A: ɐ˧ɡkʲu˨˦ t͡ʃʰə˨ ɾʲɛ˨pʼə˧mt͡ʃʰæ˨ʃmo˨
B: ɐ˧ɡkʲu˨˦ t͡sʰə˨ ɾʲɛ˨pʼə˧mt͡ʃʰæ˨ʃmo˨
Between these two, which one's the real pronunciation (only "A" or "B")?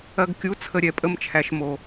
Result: B